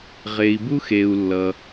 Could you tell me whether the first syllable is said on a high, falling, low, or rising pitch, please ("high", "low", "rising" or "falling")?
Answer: low